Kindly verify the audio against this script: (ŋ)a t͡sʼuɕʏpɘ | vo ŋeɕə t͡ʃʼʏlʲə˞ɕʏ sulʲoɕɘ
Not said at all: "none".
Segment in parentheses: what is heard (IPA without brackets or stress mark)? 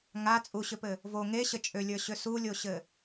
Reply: ŋ